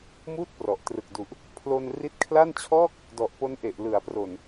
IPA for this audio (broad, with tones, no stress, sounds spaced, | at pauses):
m uː˥˩ t̚ p r ɔ˨˩ ʔ t r ɯ˨˩ k̚ d u˨˩ ʔ | pʰ l o˧ n r i˦˥ t̚ kʰ l a˥˩ n t͡ɕʰ ɔː˥˩ k̚ | d ɔ˨˩ ʔ p o˦˥ n ʔ e˨˩ ʔ l ɯ˩˦ a̯ p r o˨˩ n